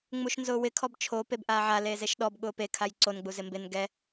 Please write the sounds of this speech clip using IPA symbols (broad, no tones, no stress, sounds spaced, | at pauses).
ŋ͡m u ʃ n z ʊː w ɪ kʰ ɔ b t͡ʃʰ o p e b ʔ aː ʕ a l eː z e ʃ ɗ ɔ b ɠ ʊː p e kʰ a j ǀ o n ɡ͡b u z ɪ m b ɪ n ɡ ɛ